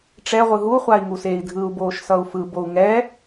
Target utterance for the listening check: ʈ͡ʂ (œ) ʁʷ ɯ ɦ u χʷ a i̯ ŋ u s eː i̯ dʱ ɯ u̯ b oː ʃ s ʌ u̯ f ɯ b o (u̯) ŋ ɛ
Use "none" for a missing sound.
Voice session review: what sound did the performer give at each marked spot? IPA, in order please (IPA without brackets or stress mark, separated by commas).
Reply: ɛ, u̯